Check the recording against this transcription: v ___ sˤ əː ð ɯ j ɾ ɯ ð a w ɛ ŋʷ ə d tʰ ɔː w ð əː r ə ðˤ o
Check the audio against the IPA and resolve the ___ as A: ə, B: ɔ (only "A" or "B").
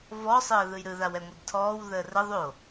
B